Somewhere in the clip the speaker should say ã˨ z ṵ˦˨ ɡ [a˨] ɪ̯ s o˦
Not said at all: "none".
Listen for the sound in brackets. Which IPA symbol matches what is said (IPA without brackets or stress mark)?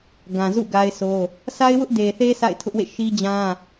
a˦